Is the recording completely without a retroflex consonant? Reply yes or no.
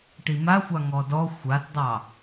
no